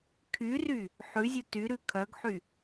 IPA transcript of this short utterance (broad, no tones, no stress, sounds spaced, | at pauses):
kʰ y r y | ħ ʉ zʲ u t y ɾ ʉ kʰ œ ɡ ħ y